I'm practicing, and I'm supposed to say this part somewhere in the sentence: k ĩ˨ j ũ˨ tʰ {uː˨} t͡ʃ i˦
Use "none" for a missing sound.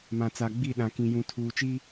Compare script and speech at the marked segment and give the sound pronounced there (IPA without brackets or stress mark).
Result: uː˨